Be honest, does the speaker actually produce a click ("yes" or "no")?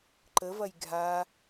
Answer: yes